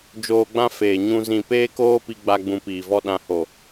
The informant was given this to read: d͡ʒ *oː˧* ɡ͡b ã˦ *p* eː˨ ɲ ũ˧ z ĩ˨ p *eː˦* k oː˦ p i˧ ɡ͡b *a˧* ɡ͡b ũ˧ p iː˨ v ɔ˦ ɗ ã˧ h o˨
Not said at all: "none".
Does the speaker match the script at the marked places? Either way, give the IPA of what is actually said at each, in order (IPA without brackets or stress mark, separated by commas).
oː˧, f, eː˦, a˧